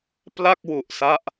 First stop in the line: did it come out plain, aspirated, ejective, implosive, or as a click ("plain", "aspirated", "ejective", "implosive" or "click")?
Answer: plain